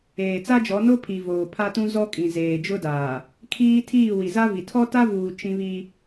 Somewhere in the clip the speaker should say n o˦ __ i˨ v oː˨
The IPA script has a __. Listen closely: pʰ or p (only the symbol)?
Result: pʰ